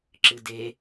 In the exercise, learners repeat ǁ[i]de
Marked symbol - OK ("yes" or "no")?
no